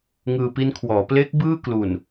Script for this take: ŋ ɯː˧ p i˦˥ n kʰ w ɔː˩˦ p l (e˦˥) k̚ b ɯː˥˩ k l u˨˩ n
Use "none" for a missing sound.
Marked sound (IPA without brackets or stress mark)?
e˦˥